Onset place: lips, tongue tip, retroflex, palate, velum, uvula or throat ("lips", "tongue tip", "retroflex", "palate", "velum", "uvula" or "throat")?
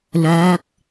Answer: tongue tip